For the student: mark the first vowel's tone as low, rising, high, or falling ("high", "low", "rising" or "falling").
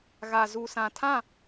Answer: low